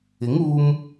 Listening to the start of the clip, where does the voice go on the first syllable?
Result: rising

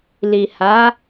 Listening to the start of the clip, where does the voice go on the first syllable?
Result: low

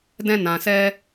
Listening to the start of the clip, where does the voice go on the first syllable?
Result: high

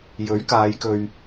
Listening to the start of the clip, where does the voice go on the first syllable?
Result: rising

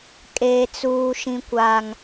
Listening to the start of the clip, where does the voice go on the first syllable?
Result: low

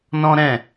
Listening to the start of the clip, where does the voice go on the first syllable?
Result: high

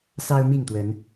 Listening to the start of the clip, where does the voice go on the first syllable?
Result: high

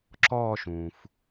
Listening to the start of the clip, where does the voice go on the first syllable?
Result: falling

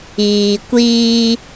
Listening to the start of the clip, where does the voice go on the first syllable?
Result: low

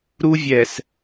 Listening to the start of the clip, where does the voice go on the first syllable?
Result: high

